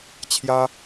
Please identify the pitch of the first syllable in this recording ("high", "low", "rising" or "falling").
high